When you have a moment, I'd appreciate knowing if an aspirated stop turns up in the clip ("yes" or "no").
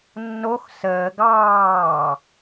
no